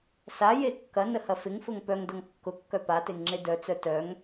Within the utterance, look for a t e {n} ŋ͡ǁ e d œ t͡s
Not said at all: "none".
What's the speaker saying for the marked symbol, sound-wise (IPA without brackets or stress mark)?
ŋ